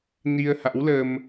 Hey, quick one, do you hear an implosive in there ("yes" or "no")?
no